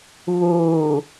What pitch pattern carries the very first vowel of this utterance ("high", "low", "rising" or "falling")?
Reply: low